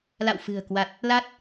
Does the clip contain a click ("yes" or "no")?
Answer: no